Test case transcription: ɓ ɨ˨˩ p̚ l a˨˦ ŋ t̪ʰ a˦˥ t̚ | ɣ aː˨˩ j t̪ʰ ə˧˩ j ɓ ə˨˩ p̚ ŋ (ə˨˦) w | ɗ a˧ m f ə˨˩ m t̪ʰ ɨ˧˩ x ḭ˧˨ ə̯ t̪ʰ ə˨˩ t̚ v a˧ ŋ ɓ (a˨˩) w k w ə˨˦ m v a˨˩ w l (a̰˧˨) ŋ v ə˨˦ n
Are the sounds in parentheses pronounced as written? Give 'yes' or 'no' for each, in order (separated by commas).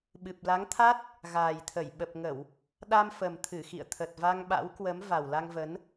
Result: no, no, no